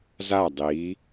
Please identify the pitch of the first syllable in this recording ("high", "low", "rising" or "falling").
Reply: falling